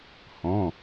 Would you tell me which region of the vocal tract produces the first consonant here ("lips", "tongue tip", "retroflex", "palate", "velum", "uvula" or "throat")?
throat